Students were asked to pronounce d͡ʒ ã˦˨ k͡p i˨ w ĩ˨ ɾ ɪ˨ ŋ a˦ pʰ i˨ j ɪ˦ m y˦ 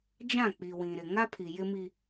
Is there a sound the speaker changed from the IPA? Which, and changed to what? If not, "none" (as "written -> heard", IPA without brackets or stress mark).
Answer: y˦ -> i˦